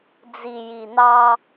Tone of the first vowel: low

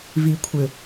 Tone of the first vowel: low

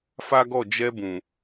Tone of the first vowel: high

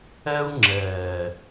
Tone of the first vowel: high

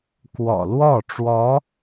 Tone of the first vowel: low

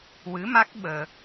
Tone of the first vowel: rising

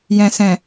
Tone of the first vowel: low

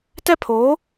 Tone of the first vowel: high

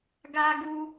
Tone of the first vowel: high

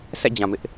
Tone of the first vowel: falling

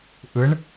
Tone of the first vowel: rising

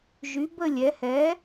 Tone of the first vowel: rising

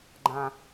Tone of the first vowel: low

